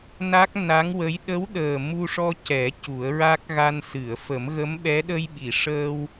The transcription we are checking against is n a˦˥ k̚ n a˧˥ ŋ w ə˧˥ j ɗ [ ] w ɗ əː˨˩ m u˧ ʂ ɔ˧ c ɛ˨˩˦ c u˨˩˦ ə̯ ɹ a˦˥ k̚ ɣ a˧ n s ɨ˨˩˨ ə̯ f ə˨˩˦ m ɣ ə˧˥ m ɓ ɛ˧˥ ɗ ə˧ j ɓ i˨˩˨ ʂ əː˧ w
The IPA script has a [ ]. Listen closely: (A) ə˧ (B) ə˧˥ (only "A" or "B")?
B